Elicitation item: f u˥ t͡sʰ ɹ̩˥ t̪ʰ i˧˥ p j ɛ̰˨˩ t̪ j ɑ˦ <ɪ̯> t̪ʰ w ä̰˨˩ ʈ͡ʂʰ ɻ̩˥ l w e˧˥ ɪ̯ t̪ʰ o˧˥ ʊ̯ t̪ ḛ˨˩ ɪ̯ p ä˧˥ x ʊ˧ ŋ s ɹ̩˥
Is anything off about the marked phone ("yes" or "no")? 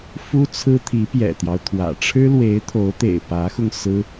yes